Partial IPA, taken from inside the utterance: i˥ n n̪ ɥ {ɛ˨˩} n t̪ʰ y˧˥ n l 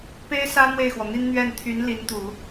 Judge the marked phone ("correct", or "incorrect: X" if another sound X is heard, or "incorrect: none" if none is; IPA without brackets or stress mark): incorrect: ɛ˥˩